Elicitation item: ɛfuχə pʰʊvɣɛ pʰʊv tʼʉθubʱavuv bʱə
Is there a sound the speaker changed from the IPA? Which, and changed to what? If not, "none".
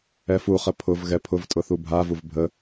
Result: ʉ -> ʊ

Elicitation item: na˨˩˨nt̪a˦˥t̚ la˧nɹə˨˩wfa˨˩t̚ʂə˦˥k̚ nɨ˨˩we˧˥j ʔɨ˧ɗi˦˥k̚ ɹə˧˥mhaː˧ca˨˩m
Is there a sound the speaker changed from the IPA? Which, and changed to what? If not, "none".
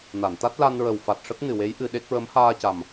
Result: i˦˥ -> e˦˥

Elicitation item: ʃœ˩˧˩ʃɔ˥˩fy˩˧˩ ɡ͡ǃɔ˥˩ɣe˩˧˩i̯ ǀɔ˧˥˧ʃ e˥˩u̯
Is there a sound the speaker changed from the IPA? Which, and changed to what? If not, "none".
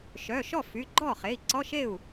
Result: ɣ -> χ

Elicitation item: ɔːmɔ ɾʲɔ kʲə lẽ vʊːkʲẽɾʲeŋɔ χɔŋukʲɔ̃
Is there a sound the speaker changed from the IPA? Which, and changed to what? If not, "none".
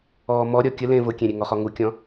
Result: ʊː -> ʊ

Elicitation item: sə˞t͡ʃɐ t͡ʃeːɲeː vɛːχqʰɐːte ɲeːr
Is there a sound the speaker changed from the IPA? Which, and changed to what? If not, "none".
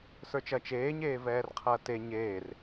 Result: χ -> r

